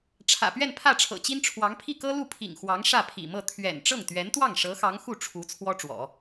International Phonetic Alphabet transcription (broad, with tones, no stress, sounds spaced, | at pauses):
ʈ͡ʂʰ ä̰˨˩ p ɥ ɛ˥˧ n pʰ ä˥˩ ʈ͡ʂʰ ɤ̰˨˩ t͡ɕ i˥ n ʈ͡ʂʰ w ɑ˧˥ ŋ pʰ i˥˩ k ɤ˥ l u˥˩ pʰ ḭ˨˩ ŋ x w ɑ˧˥ ŋ ʂ ä˥˩ pʰ ḭ˨˩ m ɤ˥˩ t̪ʰ ɥ ɛ̰˨˩ n ʈ͡ʂ ɤ˥˩ ŋ t̪ ɥ ɛ˧˥ n t̪ w ɑ˥˩ ŋ ʂ ɤ˧˥ x ɑ˧˥ ŋ x u˥˩ ʈ͡ʂʰ u˧˥ t͡sʰ w ɔ˥ ʈ͡ʂ w ɔ̰˨˩˦